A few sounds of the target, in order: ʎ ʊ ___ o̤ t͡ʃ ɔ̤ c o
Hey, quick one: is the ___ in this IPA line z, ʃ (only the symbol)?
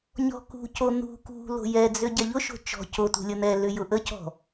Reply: ʃ